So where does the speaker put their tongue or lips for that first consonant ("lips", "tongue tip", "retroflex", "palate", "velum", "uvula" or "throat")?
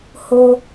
throat